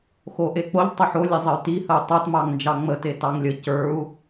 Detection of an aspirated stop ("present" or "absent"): absent